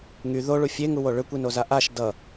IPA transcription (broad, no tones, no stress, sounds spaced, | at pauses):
ŋ y ð o ɭ u fʲ e ŋ u w o ɭ ʏ kʷ i n o z a ʔ a ʃ d ʌ